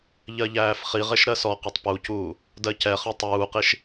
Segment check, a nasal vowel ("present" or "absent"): absent